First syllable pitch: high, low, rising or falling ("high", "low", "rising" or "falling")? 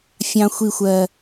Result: low